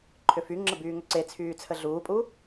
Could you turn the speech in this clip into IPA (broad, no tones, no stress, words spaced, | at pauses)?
ǃʰʏfyŋ͡ǁə byːŋʏǀet͡sʰyː t͡sʰəɮuːpʼu